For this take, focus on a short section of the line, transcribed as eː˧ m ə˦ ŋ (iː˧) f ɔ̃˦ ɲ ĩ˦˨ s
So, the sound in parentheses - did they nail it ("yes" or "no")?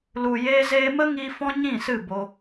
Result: yes